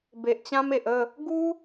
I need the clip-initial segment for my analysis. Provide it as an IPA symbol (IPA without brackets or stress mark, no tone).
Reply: b